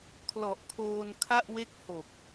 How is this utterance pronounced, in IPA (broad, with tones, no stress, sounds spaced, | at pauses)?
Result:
kʰ l ɔ˨˩ ʔ kʰ oː˧ n kʰ a˥˩ ʔ w e˥˩ k̚ h o˨˩ k̚